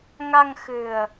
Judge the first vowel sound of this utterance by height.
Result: low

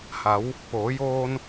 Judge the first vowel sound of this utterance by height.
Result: low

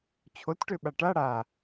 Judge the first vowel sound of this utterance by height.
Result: mid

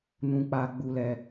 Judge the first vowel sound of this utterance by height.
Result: high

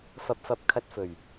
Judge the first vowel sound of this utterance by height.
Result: low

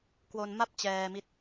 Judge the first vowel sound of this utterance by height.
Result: mid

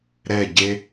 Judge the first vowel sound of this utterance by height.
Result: mid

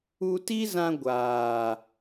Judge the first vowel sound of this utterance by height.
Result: high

